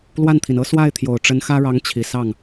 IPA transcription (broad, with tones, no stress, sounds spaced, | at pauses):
l w a˥˩ n t̪ʰ i˩ n ɤ˥ s w a˥˩ ɪ̯ t̪ʰ j o˨˩ ʊ̯ ʈ͡ʂ ə˧˥ n x ä˥ ɻ ɑ˧˥ ŋ t͡ɕʰ i˨˩ s ɑ˥˩ ŋ